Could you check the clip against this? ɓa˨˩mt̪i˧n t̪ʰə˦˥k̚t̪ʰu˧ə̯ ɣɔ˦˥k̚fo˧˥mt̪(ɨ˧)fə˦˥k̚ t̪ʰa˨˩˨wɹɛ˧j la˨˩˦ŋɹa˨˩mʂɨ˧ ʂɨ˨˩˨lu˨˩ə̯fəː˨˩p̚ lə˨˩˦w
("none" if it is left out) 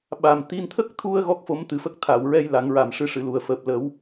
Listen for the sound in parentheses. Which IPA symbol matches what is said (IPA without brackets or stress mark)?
ɨ˨˩